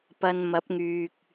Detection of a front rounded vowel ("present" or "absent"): present